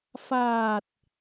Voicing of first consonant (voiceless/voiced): voiceless